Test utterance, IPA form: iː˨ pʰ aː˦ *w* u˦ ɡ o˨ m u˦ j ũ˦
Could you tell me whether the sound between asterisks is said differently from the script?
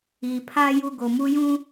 yes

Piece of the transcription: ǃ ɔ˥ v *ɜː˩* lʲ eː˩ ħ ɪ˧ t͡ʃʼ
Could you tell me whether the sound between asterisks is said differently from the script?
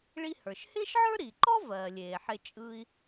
no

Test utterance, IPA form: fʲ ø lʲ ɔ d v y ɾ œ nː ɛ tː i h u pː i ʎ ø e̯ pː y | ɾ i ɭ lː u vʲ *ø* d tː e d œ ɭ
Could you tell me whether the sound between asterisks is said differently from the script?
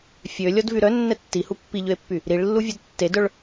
yes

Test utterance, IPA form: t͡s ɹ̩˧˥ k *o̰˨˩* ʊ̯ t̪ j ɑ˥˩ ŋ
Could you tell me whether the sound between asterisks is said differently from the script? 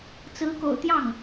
no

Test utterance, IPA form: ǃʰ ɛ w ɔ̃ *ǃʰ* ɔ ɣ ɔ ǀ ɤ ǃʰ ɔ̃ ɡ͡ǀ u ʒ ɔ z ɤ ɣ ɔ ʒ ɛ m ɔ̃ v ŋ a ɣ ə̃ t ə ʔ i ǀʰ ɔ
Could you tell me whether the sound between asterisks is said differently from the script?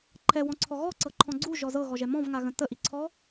yes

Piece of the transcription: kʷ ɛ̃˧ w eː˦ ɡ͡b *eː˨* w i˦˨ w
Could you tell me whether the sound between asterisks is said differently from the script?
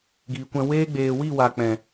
no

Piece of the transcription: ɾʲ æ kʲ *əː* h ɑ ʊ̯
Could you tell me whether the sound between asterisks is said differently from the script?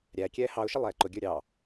yes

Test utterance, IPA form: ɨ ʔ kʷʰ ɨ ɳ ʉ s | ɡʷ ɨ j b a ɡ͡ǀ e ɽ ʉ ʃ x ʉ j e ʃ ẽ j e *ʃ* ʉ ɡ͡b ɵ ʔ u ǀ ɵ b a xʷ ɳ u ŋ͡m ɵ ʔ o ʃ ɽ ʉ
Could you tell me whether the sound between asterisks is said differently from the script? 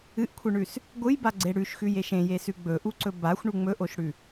yes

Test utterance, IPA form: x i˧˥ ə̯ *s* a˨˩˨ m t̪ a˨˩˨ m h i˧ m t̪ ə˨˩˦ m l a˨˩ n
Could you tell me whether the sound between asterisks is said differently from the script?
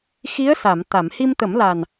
no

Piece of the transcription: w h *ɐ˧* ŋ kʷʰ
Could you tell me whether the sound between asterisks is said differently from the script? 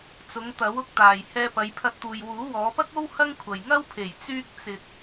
yes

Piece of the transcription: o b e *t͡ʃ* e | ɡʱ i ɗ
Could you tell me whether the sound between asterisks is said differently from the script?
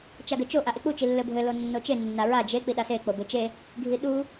no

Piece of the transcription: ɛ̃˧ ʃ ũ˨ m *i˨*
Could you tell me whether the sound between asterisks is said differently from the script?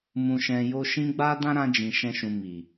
no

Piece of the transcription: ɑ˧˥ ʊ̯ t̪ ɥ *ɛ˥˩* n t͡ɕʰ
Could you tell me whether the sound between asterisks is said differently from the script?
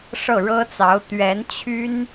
yes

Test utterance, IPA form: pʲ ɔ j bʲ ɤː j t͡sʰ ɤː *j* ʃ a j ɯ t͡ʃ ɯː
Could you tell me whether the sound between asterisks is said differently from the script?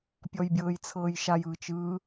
no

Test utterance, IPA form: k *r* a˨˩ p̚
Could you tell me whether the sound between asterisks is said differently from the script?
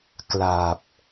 yes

